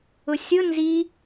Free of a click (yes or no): yes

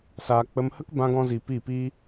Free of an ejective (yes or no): yes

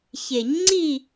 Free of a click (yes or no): no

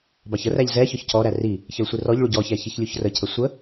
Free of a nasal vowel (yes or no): yes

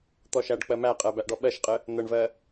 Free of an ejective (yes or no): no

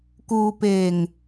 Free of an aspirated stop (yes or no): yes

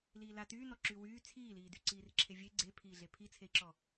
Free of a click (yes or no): no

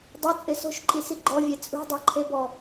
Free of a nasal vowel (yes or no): yes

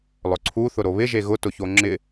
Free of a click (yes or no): no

